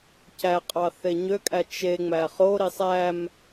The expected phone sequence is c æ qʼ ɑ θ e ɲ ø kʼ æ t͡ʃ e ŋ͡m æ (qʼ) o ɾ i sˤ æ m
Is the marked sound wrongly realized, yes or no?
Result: yes